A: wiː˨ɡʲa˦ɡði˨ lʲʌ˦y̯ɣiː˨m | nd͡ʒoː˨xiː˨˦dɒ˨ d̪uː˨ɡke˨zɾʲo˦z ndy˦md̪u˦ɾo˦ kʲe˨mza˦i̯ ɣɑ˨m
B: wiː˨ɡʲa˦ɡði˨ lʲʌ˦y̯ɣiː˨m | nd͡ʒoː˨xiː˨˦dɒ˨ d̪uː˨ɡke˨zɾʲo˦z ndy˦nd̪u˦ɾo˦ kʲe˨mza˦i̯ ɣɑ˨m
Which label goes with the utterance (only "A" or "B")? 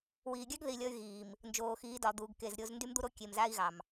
A